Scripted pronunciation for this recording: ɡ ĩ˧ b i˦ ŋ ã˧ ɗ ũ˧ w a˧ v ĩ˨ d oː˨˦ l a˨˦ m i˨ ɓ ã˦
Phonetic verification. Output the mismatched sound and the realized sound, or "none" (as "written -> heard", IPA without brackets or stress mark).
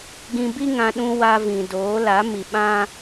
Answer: none